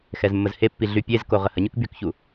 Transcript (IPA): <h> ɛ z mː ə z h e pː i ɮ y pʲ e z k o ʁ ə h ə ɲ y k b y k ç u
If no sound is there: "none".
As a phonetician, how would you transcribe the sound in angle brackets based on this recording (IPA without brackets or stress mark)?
x